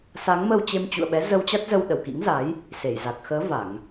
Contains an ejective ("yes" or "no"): no